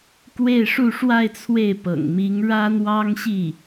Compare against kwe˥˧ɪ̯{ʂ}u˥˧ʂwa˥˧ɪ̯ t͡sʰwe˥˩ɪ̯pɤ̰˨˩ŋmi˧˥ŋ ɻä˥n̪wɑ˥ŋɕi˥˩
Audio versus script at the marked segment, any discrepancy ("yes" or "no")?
no